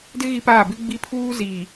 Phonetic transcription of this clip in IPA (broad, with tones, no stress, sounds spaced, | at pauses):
d ɪ˦ ɣ i˦ p aː˦˨ b ɪ˦ ɡ͡b i˦ pʰ uː˦ z iː˨